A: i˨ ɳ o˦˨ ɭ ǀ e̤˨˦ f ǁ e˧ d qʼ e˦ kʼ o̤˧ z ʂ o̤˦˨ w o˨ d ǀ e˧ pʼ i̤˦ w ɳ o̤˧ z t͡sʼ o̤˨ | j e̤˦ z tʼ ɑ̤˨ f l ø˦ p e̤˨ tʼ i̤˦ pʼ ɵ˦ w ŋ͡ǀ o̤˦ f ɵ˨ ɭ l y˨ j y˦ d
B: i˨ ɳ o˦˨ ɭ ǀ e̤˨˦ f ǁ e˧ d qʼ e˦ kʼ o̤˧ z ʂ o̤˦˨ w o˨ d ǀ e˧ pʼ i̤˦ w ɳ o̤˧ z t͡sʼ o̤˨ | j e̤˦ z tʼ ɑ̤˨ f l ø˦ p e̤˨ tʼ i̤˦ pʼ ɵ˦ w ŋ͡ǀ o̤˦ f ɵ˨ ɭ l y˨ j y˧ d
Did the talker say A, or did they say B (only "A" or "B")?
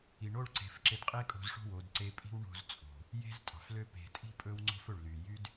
A